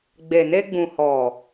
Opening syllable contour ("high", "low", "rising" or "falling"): low